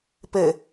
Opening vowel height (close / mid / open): mid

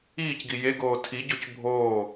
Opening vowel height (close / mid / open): close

